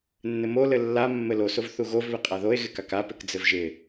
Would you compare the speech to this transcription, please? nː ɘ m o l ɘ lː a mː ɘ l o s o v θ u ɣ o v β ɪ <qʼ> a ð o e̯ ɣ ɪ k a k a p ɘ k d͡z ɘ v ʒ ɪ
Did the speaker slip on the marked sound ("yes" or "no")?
no